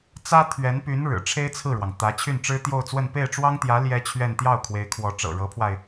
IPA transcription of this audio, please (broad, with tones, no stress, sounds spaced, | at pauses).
t͡s ä˥ t̪ʰ ɥ ɛ˧˥ n p y˧˥ n ɻ ɻ̩˨˩ ʈ͡ʂʰ e˥ ɪ̯ t͡sʰ ɹ̩˥˩ ɻ w ɑ˩ ŋ t̪ ä˧˥ t͡ɕʰ y˥˩ n ʈ͡ʂ ɻ̩˥ t̪ j o˥˧ ʊ̯ t͡s w ə˥˧ n p e˥˩ ɪ̯ ʈ͡ʂ w ɑ˥ ŋ t̪ j ä˧˥ l j ɛ˥ t͡ɕʰ ɥ ɛ˥˧ n t̪ j ɑ˥˩ ʊ̯ kʰ w e˧˥ ɪ̯ kʰ w ɔ˧˥ ʈ͡ʂ ɤ̰˨˩ ɻ ɤ˧˥ pʰ w a˧ ɪ̯